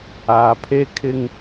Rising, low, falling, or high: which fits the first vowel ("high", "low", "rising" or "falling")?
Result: low